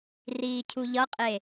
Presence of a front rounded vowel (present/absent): absent